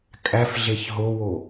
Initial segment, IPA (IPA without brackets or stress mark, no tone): kʼ